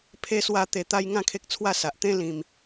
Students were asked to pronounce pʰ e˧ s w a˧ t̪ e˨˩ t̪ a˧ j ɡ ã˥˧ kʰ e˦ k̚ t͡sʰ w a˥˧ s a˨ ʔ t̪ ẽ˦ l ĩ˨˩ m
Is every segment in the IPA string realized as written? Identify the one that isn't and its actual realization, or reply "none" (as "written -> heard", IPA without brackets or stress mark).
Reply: ɡ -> ŋ